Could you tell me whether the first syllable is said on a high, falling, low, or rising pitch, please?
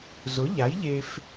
rising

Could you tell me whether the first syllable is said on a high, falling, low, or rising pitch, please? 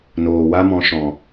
low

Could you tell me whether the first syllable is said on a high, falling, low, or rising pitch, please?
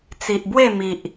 low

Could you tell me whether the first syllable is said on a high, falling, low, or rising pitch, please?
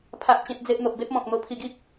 high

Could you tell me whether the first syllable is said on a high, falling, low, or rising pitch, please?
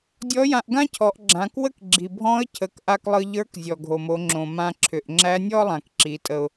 rising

